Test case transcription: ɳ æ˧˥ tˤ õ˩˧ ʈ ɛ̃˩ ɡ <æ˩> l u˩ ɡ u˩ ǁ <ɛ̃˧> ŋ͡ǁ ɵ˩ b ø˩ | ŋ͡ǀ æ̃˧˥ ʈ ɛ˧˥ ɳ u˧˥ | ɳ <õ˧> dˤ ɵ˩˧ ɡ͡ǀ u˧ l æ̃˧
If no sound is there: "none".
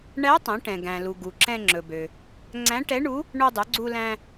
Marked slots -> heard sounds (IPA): æ̃˩, ɛ̃˧, o˧

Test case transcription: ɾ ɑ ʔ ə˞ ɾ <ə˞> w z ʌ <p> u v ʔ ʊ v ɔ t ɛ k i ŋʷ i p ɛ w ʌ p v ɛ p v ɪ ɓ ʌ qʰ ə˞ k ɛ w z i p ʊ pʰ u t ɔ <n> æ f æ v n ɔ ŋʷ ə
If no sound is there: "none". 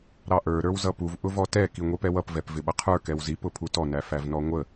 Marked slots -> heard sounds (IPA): ə˞, p, n

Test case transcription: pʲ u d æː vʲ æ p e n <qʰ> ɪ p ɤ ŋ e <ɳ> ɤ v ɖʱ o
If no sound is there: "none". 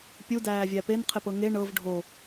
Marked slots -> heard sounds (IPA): qʰ, ɳ

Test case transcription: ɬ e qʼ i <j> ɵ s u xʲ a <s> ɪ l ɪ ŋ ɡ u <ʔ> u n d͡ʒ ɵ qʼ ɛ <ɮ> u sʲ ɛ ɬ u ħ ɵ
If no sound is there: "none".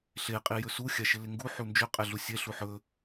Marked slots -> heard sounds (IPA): j, ʃ, ħ, ɮ

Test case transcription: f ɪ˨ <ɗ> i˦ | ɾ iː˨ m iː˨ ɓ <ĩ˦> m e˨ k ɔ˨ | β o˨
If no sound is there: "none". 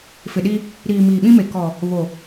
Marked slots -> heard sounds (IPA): ɗ, ĩ˦

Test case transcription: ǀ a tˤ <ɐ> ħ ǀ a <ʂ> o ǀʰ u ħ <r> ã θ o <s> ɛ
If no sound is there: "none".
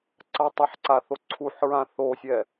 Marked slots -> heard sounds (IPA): ɐ, θ, ɹ, sʲ

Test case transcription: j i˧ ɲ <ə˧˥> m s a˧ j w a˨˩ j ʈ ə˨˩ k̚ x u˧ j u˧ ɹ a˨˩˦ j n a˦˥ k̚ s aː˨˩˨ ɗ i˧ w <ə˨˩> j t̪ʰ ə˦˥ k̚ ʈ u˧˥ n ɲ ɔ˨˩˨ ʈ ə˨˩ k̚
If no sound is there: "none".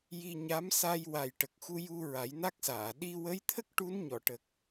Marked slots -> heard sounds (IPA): a˧˥, ə˧˥

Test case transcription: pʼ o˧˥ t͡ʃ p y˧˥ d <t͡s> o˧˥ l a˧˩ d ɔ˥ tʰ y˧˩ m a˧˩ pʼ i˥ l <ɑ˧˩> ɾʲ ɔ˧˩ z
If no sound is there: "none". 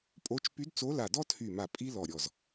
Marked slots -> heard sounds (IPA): t͡s, ɔ˧˩

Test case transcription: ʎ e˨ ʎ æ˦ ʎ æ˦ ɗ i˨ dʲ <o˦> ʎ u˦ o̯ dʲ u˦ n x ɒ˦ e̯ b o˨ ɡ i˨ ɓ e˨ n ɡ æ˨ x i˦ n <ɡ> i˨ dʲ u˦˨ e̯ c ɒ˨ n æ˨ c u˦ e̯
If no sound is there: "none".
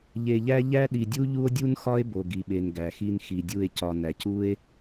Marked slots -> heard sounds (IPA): u˦, x

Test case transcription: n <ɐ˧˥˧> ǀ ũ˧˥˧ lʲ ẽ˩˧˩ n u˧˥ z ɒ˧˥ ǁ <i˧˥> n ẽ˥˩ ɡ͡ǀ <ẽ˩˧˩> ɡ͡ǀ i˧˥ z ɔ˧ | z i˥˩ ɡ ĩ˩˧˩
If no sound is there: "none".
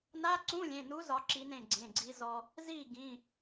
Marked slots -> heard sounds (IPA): a˧˥˧, i˧˥, ẽ˩˧˩

